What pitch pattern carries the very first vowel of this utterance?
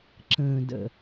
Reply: low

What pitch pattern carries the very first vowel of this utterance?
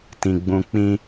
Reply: low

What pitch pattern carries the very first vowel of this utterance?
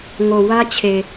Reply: low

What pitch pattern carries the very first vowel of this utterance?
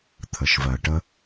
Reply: low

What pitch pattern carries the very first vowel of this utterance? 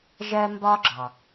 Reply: high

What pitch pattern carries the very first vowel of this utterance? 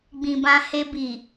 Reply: low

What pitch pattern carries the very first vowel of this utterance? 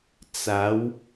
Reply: rising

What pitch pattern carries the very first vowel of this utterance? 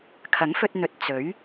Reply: rising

